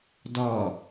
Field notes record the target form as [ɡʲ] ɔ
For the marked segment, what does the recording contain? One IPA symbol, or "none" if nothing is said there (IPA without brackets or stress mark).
d